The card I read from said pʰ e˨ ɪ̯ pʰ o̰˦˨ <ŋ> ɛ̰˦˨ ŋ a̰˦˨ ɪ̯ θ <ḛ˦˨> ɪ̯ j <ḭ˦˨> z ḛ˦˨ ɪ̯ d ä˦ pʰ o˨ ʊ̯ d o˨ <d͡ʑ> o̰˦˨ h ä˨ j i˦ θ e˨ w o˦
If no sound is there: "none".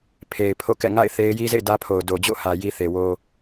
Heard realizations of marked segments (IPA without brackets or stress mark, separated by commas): k, e˦, i˦, d͡ʑ